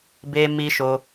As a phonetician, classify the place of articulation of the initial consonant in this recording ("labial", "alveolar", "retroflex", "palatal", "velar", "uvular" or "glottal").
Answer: labial